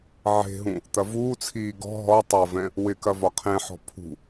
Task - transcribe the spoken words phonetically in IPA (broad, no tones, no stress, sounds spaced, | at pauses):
ʕ e̤ ɦ ũ | t̪ ɐ v uː t͡sʰ iː ɡ ɔ̤ ɦ ɔ tˤ ɐ v ɛ̃ | w ɪ k ɐ v ɒ qʰ ẽ ħ ɔ̤ pʰ ṳ